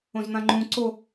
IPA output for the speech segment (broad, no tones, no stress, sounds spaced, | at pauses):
õ z n̪ ã ŋ͡ǃ ũ ǀ o